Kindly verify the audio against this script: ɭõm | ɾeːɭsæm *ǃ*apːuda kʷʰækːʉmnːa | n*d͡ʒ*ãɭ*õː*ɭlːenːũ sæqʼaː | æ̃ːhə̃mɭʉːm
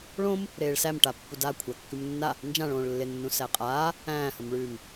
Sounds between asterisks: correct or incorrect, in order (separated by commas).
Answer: incorrect, correct, correct